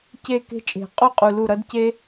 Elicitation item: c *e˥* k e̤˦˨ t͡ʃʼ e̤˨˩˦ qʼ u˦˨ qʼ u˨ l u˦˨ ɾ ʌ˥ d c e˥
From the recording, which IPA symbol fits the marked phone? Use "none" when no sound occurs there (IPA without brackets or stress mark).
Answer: e˦˨